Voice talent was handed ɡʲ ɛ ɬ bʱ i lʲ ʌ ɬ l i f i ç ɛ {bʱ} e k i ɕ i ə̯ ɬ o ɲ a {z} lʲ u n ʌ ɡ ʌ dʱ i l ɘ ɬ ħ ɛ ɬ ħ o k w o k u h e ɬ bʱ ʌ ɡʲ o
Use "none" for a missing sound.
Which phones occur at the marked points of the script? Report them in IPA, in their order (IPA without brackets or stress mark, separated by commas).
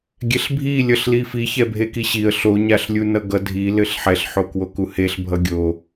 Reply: bʱ, ɬ